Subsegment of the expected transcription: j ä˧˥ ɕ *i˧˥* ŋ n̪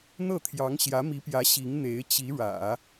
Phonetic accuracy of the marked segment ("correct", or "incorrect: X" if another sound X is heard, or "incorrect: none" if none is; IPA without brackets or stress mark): correct